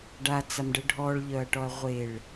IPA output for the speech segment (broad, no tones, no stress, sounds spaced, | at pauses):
ɖ a t͡s a m ɖ ə ɖʱ ɔ ɭ ʎ œ ɐ̯ ʈ ɔ ɐ̯ ʁʷ e ɭ